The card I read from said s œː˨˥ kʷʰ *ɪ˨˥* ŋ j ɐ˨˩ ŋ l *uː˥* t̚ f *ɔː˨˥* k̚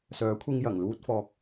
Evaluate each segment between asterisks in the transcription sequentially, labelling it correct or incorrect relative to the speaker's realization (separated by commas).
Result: incorrect, correct, incorrect